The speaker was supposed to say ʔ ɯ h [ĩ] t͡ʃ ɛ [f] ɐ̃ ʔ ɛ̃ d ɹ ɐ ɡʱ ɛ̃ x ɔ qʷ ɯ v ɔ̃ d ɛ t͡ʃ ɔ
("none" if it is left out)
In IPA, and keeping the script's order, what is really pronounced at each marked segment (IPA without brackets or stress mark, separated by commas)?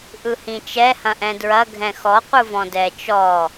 ĩ, h